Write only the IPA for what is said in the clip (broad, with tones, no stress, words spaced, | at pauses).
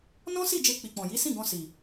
nɔ̃˦si˦˨ d͡ʒe˧ k͡pi˨k͡pɔ̃˨ ji˨˦sĩ˦˨ɡɔ̃˧ si˨